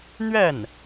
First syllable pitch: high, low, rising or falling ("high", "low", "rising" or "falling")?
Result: falling